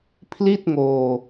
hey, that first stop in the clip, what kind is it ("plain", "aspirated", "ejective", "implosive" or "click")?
aspirated